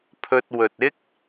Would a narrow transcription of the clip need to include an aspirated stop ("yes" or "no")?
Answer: yes